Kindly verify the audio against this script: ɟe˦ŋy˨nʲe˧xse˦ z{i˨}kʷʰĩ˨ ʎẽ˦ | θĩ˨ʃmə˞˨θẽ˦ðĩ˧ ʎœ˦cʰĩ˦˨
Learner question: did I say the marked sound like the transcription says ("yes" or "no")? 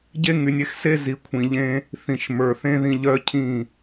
yes